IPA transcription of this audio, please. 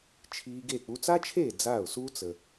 t͡ʃʰ iː˧ ɡ e˥˩ k͡p u˧ t͡s a˥ t͡ʃʰ eː˥˩ d͡z aː˥˩ ʊ̯ s u˥ t͡s ə˩

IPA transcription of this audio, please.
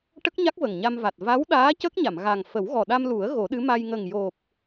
ʈ ə˦˥ k̚ ɲ a˦˥ k̚ v ə˨˩ ŋ ɲ a˧ m v a˨˩ t̚ v a˧˥ w ɗ aː˧˥ c ə˦˥ k̚ ɲ a˨˩˨ m ɣ a˨˩ ŋ f ə˨˩˦ w ɣ ɔ˨˩ ɗ a˧ m l u˨˩˦ ə̯ ɣ o˨˩˦ ɗ ɨ˧˥ m a˧ j ŋ ə˨˩ ŋ j o˨˩ p̚

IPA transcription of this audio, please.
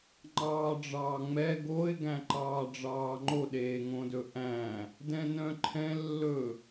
ŋ͡ǃ ɑː ɖ͡ʐ ɑː ŋ͡m ɛ ɡ o ɪ̯ ɡ æ̃ ǃ ɑː ɖ͡ʐ ɑː ŋ͡ǃ o ɗ eː ŋ õ d ɵ ʔ æ̃ | d ɛ̃ n œ̃ ǃʰ ɛ̃ lː ɵ

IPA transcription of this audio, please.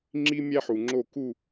ŋ͡ǁ i˦ mʲ æ˦ ħ u˨ ŋ͡ǁ o˦˨ k u˦˨

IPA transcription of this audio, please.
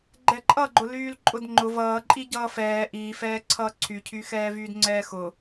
ɡ͡ǃ ɛ ǃʼ ʌ ɡ͡ǃ ʊ l yː l ǃʼ ʊ d ŋ͡ǃ ʊ v ʌː ǃʼ i ɟ ʌː f ɛː ʔ iː f ɛː ǀʰ ʌː ǀʰ y cʰ y x ɛː v yː d ŋ͡ǀ ɛː x ʊ

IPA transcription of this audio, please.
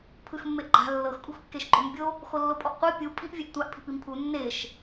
pʰ ɯ x mː e ʔ ɡ͡ǃ a̤ lː ɤ x kʼ ṳ x kː e ʃ ɡ͡ǃ o m bʲ o | x o lː o pʼ ɔ ʔ qʷ ɤ pʲ u pʼ i ʔ vʲ ɛ ʔ tʷ a ʔ pʰ i̤ p i m pʰ u nː e ʃ

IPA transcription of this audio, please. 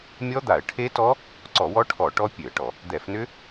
mʲ ɔ˦˥ d̪ a˧˩˧ ə̯ ʈʰ e˦˥ t ɔ˦˥ | ǀ ɔ˧˩˧ w ɔ˦˥ ʈʰ ɔ˧˩˧ ʈ ɔ˦˥ pʲ ø˧˩˧ ə̯ ʈ ɔ˧˩˧ | d̪ ɛ˧˩˧ f n ʏ˦˥

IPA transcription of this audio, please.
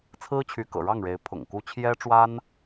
t͡sʰ ɹ̩˥ t͡ɕʰ y˧˥ k ɤ̰˨˩ ɻ ɑ˥˩ ŋ ɻ e˧˥ ɪ̯ pʰ ʊ̰˨˩ ŋ k u˥ t͡ɕʰ j ɛ˥ ʈ͡ʂ w a˥ n

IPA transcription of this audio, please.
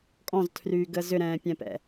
kʼ ɔ̃ z tʰ r yː ɡ əː z ʏ ɾ ɛ̃ː pʲ ɛ̃ p ɛ̰

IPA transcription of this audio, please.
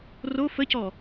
r o f ə c ɔ

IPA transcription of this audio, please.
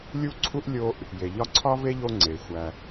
lʲ u˥ ǀʰ u˥ ʔ lʲ o˦ ʔ | j e˩ ʎ ɒ˦ ǀʰ ɒ˥ v e˥ ʎ o˦ ŋ͡ǀ e˩ xʷ æ˩

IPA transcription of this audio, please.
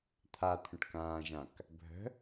t̪ʰ a t̪ʰ ə̃ ʈ k ãː ʒ ã k | bʱ ə̤

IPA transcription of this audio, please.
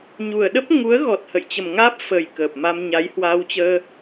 ɲ u˨˩ ə̯ ɗ ə˦˥ p̚ ŋ u˨˦ ə̯ ɣ ɔ˨˩ t̚ h ə̰˧˨ j t͡ɕ ə˨˩ m ŋ aː˦˥ p̚ f ə˨˩ j k əː˨˩ p̚ m a˧ m ɲ a˨˦ j h w aː˧ w t͡ɕ əː˧

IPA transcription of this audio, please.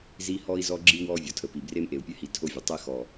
z i˦ h ɔ˦ i̯ z ɔ˦ ɡ͡ǁ i˦ w ɔ˦ vʲ ɔ˨ tʰ ə˨ p i˨ b r e˦ m ʔ e˨ u̯ pʲ ɘ˦ h i˨ tʰ o˦ vʲ ə˨ tˤ e˦ x ɔ˨

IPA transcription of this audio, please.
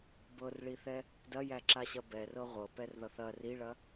b ɤ r ɭ i θ ɛ | d ɐ j æ ǁ a ɕ ɐ b ɛ r ɤ ʁʷ ɤ p ɛ r ð ʌ θ ɐ r i ɭ ɐ

